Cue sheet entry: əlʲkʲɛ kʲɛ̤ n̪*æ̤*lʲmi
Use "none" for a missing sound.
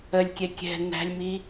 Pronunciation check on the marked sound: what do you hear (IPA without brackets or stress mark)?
æ̤